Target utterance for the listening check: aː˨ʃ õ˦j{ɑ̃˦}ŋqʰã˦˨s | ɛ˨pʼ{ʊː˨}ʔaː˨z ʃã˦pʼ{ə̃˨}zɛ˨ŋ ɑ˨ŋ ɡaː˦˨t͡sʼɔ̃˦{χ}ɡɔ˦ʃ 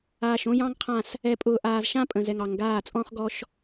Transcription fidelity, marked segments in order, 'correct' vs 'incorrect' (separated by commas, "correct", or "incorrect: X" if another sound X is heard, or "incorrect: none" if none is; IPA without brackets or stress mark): correct, correct, correct, correct